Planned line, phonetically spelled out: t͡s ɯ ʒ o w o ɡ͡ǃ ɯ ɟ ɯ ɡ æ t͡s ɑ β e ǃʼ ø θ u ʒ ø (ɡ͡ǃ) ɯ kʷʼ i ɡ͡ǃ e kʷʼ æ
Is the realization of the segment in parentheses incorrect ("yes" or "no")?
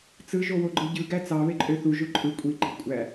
yes